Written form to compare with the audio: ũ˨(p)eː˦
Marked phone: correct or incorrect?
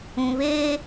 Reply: incorrect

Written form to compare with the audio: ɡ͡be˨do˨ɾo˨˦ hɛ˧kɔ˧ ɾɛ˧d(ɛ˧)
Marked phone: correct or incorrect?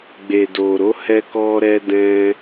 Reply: incorrect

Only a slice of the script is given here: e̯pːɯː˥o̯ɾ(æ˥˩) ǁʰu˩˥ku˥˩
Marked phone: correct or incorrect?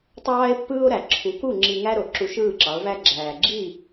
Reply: incorrect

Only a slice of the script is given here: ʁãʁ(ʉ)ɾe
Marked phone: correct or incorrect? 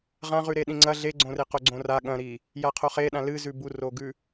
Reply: correct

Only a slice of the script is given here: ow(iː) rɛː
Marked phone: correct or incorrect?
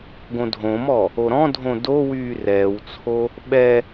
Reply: incorrect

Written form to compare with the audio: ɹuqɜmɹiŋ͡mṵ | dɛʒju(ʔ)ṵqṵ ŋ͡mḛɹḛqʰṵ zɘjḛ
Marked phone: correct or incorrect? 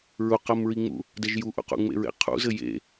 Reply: correct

